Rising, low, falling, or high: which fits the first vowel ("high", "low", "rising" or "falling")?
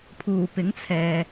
low